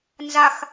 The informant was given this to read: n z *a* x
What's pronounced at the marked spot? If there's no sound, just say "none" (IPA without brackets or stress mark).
a